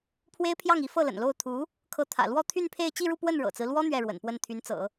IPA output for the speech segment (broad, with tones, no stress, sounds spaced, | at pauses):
pʰ w e˥ ɪ̯ pʰ j ɑ˥˩ ŋ i˧˥ f ɤ˥˩ l ə̰˨˩ n l o˥˩ ʊ̯ t̪ʰ u˧˥ | kʰ ɤ˧˥ t̪ʰ ä̰˨˩ l w ɔ˥˧ t̪ʰ y˥˧ n pʰ e˥˧ ɪ̯ t͡ɕ i˥˧ ɻ u˥˧ p w ə˥˩ n ɻ ɤ̰˨˩ t͡s ɹ̩˦ l w ɔ˥ n̪ ɥ ɛ˥˩ ɻ w ə̰˨˩ n p w ə˥˩ n t̪ʰ y˧˥ n t͡s ɤ̰˨˩˦